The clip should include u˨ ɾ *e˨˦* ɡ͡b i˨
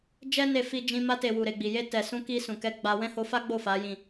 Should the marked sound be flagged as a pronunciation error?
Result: yes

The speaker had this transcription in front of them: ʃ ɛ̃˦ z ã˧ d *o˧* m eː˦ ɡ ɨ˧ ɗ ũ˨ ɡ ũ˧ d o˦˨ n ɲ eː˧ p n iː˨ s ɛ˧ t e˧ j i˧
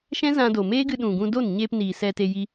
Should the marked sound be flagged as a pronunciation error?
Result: yes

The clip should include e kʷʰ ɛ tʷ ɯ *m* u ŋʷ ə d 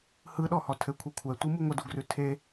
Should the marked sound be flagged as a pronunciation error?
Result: no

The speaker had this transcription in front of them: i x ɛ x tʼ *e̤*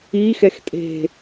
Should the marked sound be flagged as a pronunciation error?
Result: no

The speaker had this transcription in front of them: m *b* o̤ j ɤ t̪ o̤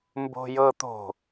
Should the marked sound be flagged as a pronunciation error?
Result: no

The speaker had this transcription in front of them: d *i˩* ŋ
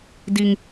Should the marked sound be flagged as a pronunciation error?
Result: no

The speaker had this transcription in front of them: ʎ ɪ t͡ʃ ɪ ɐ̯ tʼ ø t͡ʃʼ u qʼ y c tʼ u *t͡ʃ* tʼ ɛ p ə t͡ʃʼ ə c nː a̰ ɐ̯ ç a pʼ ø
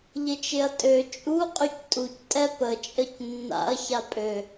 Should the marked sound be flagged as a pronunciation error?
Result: yes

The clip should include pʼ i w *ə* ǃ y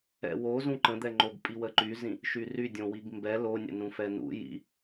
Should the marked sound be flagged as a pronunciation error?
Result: no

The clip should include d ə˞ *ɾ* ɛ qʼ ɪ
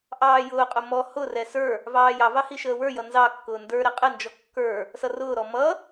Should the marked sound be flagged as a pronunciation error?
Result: no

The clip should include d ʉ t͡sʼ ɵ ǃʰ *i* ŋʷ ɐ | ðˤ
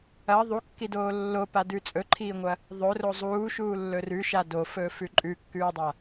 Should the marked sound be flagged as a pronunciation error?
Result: yes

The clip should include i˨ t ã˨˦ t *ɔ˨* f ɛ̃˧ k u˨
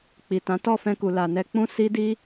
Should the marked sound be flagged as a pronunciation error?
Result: yes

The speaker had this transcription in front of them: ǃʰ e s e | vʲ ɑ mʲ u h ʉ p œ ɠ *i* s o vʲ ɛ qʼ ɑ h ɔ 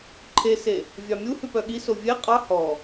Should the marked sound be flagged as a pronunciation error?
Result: no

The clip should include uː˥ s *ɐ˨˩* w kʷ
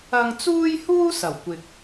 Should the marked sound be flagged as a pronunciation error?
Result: no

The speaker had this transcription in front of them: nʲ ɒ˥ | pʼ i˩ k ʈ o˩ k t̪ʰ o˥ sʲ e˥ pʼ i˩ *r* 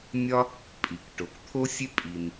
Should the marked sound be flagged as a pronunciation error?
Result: yes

